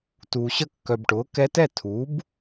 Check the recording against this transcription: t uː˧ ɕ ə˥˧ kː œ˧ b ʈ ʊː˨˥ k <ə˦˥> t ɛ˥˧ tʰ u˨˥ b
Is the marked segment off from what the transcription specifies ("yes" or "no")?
yes